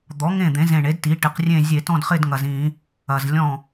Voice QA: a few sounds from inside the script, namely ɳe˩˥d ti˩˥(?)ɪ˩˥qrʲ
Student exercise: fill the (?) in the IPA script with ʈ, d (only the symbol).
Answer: ʈ